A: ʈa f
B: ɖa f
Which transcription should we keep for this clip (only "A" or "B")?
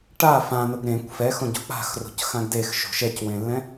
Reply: A